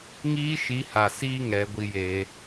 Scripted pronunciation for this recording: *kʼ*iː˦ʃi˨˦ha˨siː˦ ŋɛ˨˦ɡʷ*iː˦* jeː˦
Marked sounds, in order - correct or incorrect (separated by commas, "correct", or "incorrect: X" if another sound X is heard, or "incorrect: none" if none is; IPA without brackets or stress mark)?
incorrect: ŋ, incorrect: i˦